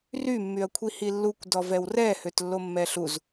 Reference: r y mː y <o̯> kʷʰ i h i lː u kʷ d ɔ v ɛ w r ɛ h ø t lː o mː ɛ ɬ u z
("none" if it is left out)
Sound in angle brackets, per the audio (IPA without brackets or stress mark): ɐ̯